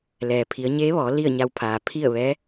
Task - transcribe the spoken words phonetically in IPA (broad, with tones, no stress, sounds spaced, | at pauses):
l ɛː˩ pʰ i˩˧ ə̯ ɲ eː˧˥ ʋ ɔː˩˧ l i˥˨ ə̯ ɲ a˧ w pʰ aː˩ pʰ i˥˨ ə̯ ʋ ɛː˧˥